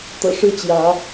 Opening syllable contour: low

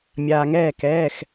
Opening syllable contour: low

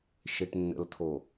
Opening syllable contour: low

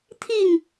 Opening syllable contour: falling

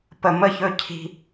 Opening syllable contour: low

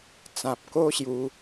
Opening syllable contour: low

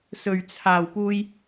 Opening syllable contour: low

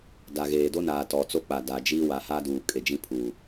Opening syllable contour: low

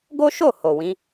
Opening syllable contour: high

